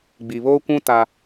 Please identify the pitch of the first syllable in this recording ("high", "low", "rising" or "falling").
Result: low